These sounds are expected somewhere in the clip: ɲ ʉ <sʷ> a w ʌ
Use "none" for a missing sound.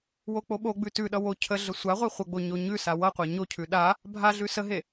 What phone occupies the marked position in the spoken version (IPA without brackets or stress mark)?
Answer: s